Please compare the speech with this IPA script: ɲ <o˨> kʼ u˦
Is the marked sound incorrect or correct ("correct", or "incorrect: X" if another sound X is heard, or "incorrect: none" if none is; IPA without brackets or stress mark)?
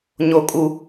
incorrect: o˦